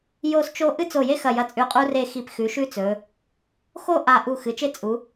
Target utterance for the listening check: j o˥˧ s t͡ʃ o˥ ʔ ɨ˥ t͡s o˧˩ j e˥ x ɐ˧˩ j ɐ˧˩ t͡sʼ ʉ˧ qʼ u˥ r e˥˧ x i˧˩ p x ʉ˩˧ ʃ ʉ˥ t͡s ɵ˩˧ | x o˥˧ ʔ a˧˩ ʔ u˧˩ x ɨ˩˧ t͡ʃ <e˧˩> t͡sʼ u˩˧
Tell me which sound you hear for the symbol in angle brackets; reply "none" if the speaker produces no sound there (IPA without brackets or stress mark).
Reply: e˥